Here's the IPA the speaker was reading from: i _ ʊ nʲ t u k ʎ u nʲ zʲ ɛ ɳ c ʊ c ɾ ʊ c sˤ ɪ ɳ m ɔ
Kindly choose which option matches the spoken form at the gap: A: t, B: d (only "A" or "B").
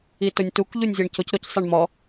A